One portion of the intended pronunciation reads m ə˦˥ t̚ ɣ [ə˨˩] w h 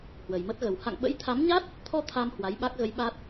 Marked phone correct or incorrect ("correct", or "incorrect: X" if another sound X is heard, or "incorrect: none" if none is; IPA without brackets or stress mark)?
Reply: correct